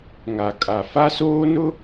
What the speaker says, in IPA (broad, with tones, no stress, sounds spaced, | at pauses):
ŋ a˨ kʼ a˨ f a˦ s oː˦ n ʊ˦